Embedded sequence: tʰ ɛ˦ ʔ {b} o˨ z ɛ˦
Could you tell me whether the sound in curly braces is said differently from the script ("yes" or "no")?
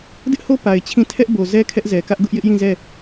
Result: no